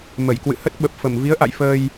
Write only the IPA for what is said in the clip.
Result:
m ə˧˩ j k w ɨ̰˧˨ h ə˦˥ t̚ ɓ ə˨˩ p̚ f ə˧˩ m v i˨˦ ə̯ ʔ a̰˧˨ j f əː˧ j

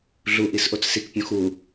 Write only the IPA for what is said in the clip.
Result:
ɮ u ʔ i s ʔ o t͡s s i k pʲ õ x u

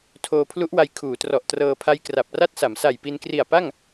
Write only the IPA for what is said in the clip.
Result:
tʰ oː˧ pʰ l u˦˥ ʔ w a˧ j kʰ uː˩˦ t r ɔ˨˩ ʔ t r ɤː˧ pʰ a˦˥ j k r a˨˩ p̚ r a˥˩ t̚ s a˩˦ m s a˨˩ j p i˧ n k r i˨˩ a̯ p a˥˩ ŋ

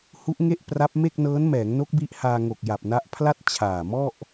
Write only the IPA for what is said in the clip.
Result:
h u˦˥ ʔ ŋ e˥˩ ʔ p r a˦˥ p̚ m e˥˩ k̚ n ɤː˦˥ n m ɛː˩˦ ŋ n o˦˥ k̚ b i˦˥ ʔ h aː˧ ŋ o˨˩ k̚ j a˨˩ p̚ n a˦˥ ʔ pʰ l a˥˩ t̚ t͡ɕʰ aː˨˩ m ɔ˥˩ ʔ

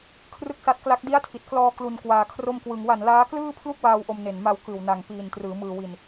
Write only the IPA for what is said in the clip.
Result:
kʰ r ɯ˥˩ k̚ s a˦˥ t̚ k l a˦˥ k̚ d i˦˥ a̯ tʰ i˨˩ t̚ k l ɔː˧ k l u˧ n k w aː˧ kʰ r o˥˩ m k w ɯ˧ ŋ w a˨˩ n l aː˦˥ k l ɯː˥˩ pʰ l u˥˩ k̚ w aː˧ w ʔ o˧ m n e˨˩ n m a˧ w k ɯː˨˩ w n a˨˩ ŋ p iː˨˩ n t r ɯː˩˦ m ɯː˨˩ w i˨˩ n

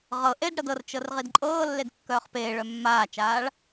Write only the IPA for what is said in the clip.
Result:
ʁ ɤ ʔ e d ɽ ɤ d ɤ r t͡ʃ ɤ r ʁ i d ǃʼ ɤː lː e d kː œː χ p eː ɭ œ mː aː t͡ʃ aː ɭ

